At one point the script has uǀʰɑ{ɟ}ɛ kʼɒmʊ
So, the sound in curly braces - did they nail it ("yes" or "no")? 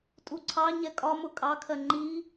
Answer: no